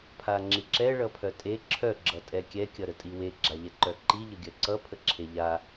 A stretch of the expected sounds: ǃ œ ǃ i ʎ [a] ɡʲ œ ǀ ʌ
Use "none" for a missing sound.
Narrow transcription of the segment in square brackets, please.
ə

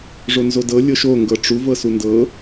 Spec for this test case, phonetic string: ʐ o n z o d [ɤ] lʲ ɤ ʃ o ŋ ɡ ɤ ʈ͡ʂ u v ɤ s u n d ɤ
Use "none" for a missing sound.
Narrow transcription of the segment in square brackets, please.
ɤ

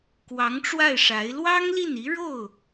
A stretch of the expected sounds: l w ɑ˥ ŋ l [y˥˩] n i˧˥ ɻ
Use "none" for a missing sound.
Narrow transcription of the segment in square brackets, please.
i˥˩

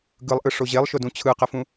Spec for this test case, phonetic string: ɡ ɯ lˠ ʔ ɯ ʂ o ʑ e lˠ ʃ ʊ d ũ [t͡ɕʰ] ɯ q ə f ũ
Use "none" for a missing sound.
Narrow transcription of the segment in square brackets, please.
t͡ɕʰ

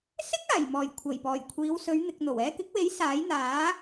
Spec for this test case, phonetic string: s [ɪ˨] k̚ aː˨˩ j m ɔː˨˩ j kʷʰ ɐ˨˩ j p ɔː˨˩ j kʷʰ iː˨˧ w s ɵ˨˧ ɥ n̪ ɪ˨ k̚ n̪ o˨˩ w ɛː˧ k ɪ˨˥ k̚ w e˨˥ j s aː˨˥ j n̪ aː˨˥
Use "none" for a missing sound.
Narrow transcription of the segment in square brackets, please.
ɪ˥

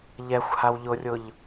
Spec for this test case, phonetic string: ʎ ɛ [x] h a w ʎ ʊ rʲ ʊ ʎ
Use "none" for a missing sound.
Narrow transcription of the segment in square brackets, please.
xʷ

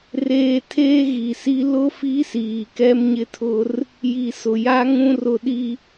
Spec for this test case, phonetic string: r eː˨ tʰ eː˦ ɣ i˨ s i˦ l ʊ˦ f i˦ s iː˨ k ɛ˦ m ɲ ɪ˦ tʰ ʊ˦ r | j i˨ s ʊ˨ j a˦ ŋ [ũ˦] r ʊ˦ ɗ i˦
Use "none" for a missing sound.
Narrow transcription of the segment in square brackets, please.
ũ˦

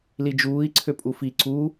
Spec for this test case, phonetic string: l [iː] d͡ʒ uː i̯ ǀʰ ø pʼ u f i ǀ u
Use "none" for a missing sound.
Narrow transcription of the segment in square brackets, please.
i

